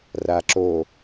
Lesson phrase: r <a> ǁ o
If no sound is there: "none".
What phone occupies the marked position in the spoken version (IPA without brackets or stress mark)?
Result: a